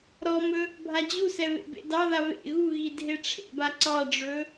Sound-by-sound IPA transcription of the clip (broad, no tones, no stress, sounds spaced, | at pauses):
ɾ ɔ m ɵ | bʱ a d͡ʑ u s ɛ β ḛ b ḛ d ɑ ð a β ḛ ɣ u ɣ i dʱ e ʈ͡ʂʰ ḛ b a ǀ ɑ ɖ͡ʐ ɵ